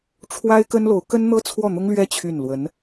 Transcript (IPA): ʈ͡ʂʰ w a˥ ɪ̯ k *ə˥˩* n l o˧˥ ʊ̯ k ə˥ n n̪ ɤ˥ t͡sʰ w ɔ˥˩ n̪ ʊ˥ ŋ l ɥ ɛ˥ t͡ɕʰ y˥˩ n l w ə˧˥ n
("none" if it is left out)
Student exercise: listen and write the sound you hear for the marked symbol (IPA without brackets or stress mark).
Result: ə˥